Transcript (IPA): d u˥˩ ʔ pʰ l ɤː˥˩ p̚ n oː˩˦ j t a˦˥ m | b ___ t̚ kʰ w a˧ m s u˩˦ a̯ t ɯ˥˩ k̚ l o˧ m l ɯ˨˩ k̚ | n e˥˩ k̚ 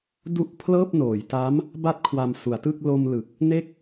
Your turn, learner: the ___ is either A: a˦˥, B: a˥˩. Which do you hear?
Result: A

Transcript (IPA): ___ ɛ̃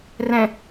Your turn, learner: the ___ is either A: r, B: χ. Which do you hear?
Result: A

